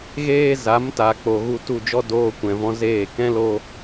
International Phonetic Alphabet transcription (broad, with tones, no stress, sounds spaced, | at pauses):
ɣ eː˦ z a˨˦ m t a˨ k͡p o˨ ɣ u˧ t u˦˨ d͡ʒ ɔ˦ d oː˧ kʷ ɛ̃˨ v ɔ̃˧ z eː˦˨ k ɛ̃˦ l o˧